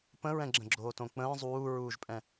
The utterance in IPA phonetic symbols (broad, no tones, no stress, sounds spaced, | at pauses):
p ə̃ ɹ ɛ̃ ɡ͡ǁ ə̃ ɡ͡ǁ oː t õ k͡p ə̃ː zˤ uː ɹ uː ʒ pʼ ɛ̃